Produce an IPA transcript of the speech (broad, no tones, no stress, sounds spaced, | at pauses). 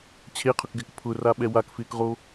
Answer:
t͡ɕʰ e qʰ ʊ k ɡ ɛ k pʰ ʊ r a ɓ ɛ w a k f ɪː k ʁ o